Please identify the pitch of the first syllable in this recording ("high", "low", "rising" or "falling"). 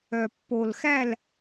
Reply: low